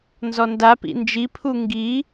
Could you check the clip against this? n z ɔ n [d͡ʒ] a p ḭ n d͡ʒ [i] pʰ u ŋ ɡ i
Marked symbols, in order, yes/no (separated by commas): no, yes